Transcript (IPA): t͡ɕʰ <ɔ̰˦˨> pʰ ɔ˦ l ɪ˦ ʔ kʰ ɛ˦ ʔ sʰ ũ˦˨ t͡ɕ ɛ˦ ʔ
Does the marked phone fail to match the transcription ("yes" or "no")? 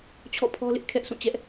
no